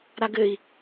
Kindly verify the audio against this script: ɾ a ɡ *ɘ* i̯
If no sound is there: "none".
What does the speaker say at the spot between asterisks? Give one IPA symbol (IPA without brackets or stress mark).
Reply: ɘ